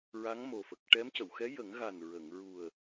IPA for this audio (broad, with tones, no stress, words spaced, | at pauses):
ɹa˧˥ŋmo˨˩fə˨˩k̚ ʈɛ˧˥m cə˨˩˨wxɛ˧˥ jə˨˩˦ŋɣa˨˩n ɹə˨˩˨ŋɹu˨˩ə̯